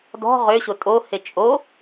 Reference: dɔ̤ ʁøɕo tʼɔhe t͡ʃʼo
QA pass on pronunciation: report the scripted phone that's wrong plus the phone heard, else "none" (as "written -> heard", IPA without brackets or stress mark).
ɔ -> o